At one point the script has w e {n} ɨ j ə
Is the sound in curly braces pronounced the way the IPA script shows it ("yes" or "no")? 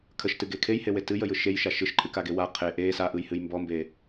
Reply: no